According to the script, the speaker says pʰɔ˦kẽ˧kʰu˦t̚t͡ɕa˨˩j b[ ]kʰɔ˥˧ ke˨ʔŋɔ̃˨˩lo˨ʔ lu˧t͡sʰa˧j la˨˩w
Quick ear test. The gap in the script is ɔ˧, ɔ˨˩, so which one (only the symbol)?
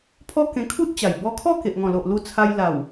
ɔ˧